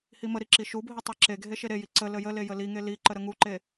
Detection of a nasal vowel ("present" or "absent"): absent